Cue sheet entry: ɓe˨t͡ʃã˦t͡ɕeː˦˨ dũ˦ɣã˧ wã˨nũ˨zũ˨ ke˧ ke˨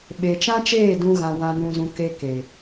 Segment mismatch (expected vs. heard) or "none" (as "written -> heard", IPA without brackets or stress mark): t͡ɕ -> t͡ʃ